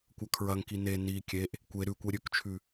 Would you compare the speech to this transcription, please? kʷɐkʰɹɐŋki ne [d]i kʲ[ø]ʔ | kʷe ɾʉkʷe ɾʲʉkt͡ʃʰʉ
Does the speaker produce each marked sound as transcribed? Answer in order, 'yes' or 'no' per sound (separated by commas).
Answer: no, no